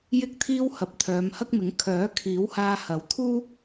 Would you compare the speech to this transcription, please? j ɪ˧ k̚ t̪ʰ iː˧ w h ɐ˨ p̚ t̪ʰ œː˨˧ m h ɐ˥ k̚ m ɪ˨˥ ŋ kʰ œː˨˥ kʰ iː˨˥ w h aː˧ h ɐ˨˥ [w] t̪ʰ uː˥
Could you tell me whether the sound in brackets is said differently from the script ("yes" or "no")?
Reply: no